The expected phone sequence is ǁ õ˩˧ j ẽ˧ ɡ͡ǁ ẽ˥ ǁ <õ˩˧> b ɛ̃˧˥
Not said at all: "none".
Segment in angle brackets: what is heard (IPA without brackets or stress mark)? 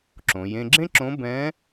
õ˧˥